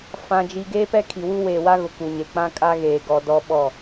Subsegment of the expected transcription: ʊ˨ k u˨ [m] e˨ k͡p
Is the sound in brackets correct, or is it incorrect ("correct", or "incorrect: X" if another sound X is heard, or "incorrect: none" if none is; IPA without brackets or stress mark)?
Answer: incorrect: ɲ